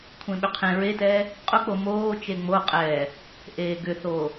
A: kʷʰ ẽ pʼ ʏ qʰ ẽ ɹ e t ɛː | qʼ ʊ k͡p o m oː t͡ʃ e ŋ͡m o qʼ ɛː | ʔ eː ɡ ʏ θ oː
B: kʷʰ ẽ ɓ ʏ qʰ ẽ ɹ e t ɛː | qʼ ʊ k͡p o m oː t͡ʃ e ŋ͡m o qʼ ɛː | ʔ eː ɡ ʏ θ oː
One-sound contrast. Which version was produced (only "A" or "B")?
B